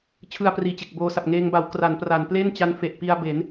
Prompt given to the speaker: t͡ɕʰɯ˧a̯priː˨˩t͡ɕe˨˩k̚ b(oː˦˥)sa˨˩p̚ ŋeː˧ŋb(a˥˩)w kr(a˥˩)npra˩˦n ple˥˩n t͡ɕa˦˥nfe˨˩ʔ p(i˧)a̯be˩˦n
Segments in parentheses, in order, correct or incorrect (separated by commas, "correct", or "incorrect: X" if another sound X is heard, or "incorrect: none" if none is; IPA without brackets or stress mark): incorrect: oː˧, incorrect: a˩˦, incorrect: a˩˦, correct